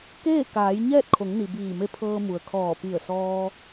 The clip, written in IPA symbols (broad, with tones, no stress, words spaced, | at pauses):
keː˥˨kaː˩˧j ɲɛː˥˨t̚kʰo˩˧ŋni˩ biː˧˩me˧˥ pʰɤː˧mu˩ə̯kʰɔː˧˩ pi˧˩ə̯sɔː˧